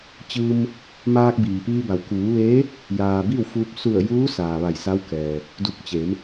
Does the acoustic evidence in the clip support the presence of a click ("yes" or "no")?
no